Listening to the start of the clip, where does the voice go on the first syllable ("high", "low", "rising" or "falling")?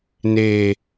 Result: high